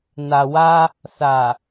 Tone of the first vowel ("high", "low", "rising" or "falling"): low